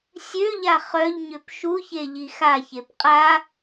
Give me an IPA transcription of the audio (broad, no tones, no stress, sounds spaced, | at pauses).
sʲ ø ʎ a χ œ ʎ ɲ ø p ʃ u ç e ʎ i x a ç e p qʼ a